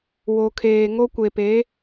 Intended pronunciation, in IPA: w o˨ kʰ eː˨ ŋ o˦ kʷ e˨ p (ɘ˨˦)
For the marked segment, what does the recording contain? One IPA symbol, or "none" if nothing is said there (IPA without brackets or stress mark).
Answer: e˨˦